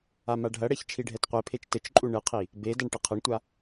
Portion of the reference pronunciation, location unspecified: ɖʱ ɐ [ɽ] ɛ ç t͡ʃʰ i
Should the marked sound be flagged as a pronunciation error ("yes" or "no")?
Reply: no